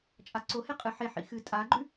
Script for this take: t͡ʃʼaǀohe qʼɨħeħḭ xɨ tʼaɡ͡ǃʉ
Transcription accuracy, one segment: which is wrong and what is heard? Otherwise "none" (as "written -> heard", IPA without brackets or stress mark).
none